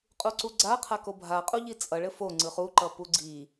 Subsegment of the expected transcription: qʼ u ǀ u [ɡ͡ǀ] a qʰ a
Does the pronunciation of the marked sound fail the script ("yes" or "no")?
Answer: no